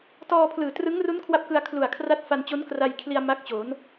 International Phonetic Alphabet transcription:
tɔː˧pʰlɯː˨˩trɯ˦˥ŋru˦˥n kʰwa˥˩p̚kɯ˧a̯ kʰlu˨˩a̯kʰra˦˥t̚ fa˧nt͡ɕo˦˥nkra˧jkʰli˧a̯ ma˦˥k̚t͡ɕo˩˦n

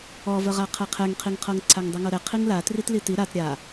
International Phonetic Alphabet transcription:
ɔvəʁa qʰɛqʰɛŋqʰiŋqʰɤŋ ǀʰaŋdˤɯŋɤɾɛ qʰiŋla tritliti ɾat ɾʲa

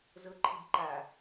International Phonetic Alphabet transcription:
zɤǃʰib ǃa

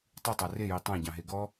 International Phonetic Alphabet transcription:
tˤɨtˤa reji tˤãɟɑ̃ɦe ɡɔ

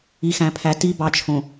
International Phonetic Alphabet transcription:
i˨xæ̃˨pʰæ˨ ti˨ bɑ˨t͡ʃʰõ˨

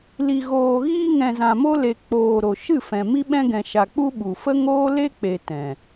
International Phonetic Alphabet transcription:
li˨ɣoː˨ɣiː˧ ŋɛ̃˨zã˨mo˧le˨ k͡poː˨ ɾo˨ ʃɨ˦˨fɛ̃˨ mi˧ɓɛ̃˧ ɡɛ̃˨ʃa˨k͡pu˧ ɓu˨fə˦ŋoː˦ le˦k͡pe˨ tɛ̃˨

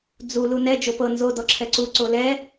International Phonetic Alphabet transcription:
d͡zu lunɛ d͡ʒopɤ nzo dɔǁʰɛǀu ǀolɛ

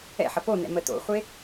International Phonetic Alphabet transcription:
ɛ̰ħɐ ponɛ̰ məto̰χʷe

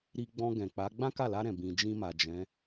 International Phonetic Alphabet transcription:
ɾi˧ ɡ͡bɔ̃˧ɡɛ̃˨k͡pa˨˦ ɡ͡bã˦ka˦˨la˧ɾɛ̃˨ bĩ˨ d͡ʒĩ˧ma˨ d͡ʒɛ̃˨˦

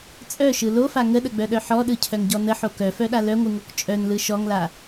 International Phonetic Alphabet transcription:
t͡sʼœʃɯ lofa ŋəɗəɡ͡bœɗœ ħɔɗɯcʰœŋɟɔ nəħo kœfœɗa lœŋʷɯŋok t͡ʃʼœnlɯ ʃɔŋla

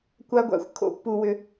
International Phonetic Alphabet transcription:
kʷa˧ɡʷa̰˧xʷ kʰo̰˧pːu˩wʏ˩

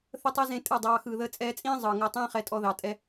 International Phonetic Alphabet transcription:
θə˦tˤɛ˦zẽ˧ tʼɯ˦˨dˤɑː˧ xɯː˨ðəː˧t͡sʼɛː˧t͡sʼĩː˦ zˤɯː˨ŋəː˧tˤĩː˦ χɛ˧tʼɔ˧ðɑ˨ tʼɛ˦

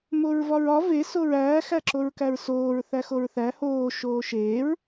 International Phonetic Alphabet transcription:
moɹvɒɹɒ ve soɹæː xæǁoɹkæɹsoːɹ θæxoɹθæ hoː ʃoːʃeːɹ

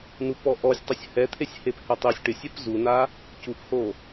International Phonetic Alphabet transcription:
nupɔʔɔsʲtˤʊsʲ hɛt̪ʰesʲ hephɛtˤisʲ ʈɪsʲɛp zuna | cupho

